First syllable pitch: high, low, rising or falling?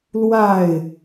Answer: falling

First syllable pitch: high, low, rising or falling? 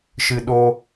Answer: high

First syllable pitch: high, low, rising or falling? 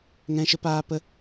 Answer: high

